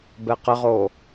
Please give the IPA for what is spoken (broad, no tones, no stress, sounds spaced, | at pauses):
b ɛ q ə ʁ o